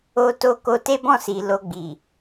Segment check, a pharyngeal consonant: absent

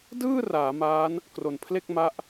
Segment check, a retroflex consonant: absent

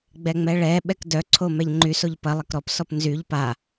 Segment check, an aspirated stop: present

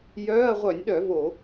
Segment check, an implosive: present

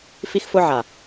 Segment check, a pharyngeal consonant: present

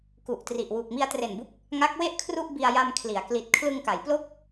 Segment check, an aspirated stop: present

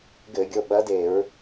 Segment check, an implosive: present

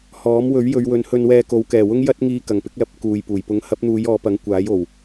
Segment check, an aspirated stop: absent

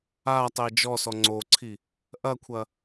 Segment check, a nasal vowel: absent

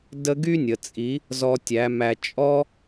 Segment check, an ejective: present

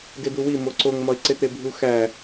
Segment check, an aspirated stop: absent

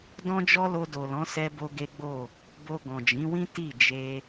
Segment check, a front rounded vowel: absent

